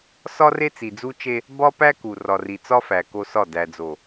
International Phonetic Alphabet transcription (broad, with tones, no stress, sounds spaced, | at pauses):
s ɒ˦ r e˦ t͡s i˨ d͡z u˦ t͡ʃ e˦ | b ɒ˦ p æ˦ k u˨ r ɒ˨ r i˨ t͡s ɒ˦ f æ˨ k o˦ s ɒ˦˨ d æ˨ d͡z o˨